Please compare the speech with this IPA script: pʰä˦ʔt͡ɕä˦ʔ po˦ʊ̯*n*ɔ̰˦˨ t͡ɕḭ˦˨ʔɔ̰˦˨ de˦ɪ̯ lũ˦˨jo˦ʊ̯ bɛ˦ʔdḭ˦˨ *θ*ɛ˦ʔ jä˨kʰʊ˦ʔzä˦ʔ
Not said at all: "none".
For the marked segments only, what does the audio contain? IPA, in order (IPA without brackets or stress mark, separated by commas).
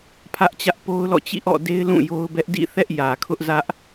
l, θ